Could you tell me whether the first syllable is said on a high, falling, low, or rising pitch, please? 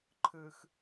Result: low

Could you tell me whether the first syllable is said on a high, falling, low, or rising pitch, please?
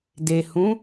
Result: low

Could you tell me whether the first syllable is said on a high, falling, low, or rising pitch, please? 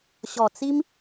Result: low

